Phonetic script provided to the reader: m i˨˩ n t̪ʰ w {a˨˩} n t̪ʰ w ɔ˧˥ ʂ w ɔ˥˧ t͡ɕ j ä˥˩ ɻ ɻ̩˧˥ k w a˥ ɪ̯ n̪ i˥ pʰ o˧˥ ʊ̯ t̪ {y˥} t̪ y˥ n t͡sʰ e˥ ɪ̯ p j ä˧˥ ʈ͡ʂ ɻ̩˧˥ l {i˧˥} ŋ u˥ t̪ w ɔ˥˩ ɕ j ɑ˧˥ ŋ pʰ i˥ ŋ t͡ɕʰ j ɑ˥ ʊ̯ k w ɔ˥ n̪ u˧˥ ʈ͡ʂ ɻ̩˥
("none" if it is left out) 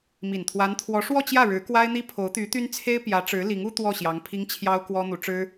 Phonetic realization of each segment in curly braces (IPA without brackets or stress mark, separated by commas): a˧˥, y˧˥, i˧˥